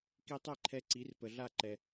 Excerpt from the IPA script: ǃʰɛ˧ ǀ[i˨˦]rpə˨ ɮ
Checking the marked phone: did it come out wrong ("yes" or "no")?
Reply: no